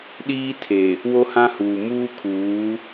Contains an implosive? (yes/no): yes